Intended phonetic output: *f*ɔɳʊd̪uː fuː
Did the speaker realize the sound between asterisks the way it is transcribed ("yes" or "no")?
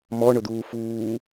no